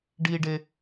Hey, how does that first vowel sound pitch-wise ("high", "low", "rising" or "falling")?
low